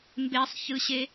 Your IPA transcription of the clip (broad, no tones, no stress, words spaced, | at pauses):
mbesˤçɯɕe